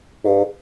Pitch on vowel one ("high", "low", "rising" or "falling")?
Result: high